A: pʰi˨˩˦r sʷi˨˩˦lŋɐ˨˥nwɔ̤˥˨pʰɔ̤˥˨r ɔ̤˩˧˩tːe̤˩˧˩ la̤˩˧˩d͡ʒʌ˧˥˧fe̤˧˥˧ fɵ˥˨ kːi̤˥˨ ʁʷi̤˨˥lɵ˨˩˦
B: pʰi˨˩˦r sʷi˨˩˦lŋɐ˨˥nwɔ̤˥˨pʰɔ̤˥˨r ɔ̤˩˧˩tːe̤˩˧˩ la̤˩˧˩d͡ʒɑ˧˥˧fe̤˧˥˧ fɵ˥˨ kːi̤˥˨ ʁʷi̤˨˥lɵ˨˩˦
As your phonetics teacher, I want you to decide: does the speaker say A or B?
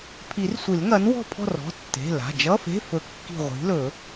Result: A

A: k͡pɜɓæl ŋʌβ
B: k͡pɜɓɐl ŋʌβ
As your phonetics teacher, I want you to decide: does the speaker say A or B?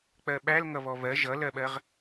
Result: A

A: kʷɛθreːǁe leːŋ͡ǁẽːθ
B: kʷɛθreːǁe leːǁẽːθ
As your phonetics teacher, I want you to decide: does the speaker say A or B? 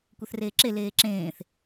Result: B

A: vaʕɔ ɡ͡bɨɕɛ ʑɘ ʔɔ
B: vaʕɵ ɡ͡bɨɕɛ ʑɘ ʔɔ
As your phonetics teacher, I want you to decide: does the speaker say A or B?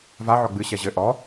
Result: A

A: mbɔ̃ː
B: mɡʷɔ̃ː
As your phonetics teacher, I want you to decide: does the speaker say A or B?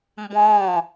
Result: A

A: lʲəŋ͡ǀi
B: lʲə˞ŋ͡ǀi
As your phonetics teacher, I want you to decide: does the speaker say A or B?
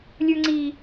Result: B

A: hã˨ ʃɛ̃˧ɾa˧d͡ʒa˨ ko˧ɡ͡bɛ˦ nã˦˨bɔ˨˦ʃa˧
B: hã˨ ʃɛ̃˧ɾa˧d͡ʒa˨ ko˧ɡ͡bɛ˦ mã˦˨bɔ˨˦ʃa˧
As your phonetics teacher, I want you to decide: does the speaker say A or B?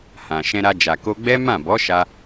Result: B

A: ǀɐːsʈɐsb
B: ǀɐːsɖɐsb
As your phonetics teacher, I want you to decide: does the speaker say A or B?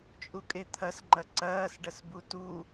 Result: B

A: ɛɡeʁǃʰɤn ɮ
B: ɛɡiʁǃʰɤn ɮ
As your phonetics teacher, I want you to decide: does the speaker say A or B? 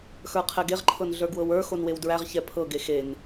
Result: A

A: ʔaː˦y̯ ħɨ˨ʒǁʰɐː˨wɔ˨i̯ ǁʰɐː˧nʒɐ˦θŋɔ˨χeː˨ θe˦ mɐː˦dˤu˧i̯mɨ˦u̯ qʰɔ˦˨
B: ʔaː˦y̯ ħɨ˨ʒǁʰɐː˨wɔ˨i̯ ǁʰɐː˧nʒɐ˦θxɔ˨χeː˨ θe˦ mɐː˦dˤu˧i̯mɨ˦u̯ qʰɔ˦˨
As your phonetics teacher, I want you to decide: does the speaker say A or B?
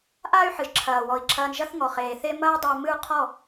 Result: A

